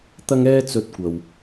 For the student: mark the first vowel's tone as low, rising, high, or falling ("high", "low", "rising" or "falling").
high